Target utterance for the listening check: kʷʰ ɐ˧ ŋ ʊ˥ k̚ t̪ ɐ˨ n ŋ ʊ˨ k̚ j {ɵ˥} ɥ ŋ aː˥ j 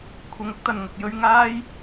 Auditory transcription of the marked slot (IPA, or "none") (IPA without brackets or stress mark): ɵ˥